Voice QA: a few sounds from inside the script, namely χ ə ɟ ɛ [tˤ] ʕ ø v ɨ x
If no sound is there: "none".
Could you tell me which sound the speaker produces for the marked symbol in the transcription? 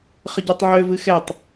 tˤ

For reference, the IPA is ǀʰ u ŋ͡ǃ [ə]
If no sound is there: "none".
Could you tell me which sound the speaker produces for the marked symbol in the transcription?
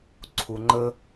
ə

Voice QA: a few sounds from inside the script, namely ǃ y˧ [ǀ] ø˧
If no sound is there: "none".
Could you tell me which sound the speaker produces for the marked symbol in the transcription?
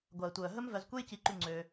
ŋ͡ǀ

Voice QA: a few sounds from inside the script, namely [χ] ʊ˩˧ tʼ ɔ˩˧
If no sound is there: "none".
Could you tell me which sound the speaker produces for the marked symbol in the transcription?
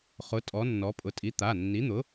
χ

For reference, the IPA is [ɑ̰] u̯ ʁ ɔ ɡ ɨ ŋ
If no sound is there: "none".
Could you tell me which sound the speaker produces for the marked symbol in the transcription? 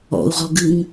ɔ̰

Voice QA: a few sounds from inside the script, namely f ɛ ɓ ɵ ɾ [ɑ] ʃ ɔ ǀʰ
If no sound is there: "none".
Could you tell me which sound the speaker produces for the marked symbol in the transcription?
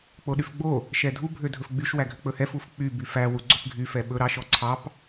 ɑ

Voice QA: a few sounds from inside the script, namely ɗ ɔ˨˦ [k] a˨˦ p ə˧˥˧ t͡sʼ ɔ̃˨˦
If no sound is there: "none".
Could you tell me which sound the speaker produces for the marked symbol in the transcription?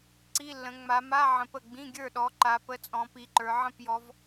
ǃ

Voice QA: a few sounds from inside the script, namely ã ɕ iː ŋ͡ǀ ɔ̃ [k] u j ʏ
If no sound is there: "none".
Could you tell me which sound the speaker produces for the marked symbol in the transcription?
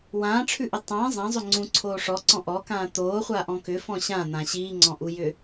ʔ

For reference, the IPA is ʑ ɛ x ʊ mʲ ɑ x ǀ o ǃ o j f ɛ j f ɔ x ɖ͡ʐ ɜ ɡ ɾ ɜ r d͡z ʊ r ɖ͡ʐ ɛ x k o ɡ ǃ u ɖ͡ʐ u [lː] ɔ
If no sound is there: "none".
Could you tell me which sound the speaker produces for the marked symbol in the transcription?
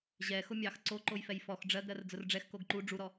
ɾ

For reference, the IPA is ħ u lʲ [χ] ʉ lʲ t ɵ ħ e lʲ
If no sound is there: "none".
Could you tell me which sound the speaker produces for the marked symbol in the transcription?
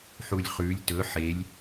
χ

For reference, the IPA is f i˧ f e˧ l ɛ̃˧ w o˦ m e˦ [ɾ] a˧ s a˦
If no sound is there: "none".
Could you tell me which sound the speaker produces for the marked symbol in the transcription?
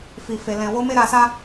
ɾ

